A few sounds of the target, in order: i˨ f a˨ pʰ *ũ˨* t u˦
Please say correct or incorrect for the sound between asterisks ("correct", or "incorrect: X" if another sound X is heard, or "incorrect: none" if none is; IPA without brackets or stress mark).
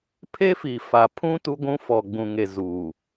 incorrect: ũ˦